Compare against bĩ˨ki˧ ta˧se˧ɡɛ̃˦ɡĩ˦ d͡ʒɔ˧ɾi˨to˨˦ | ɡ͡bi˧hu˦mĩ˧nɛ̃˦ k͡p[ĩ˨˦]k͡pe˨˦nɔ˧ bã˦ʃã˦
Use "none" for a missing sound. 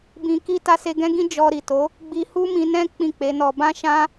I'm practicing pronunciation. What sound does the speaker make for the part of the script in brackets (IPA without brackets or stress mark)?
ĩ˦˨